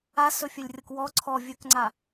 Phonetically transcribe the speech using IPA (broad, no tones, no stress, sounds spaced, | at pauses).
a s ɵ fʲ ɵ lʲ rʲ ɤ k w ɔ ǀʰ ɔ vʲ ɵ k ŋ͡ǀ a